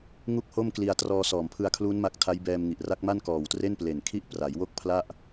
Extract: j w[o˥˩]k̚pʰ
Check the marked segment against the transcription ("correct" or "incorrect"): correct